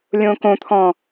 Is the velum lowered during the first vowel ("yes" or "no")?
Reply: yes